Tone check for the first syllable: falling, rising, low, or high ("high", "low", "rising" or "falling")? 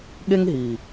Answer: high